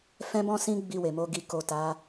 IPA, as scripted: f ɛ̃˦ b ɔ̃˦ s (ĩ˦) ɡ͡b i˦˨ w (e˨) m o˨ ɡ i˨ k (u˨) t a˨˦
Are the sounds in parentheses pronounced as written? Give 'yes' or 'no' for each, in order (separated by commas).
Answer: yes, yes, no